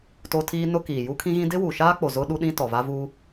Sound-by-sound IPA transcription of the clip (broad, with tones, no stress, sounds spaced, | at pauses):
t o˦ tʰ iː˦ n ʊ˦ k iː˨ j u˦ kʰ ĩ˦ ɣ ĩ˦ d ɪ˦ w u˨ ʃ aː˦ k͡p o˨ z ʊ˦ ɗ u˦ ɗ ĩ˦ t ɔ˨ v a˦ v u˦